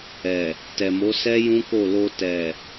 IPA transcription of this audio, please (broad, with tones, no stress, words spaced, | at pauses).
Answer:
ɛ˨ | tɛ˨mo˨˦sɛ˦ jũ˦ko˦˨lo˧ tɛ˨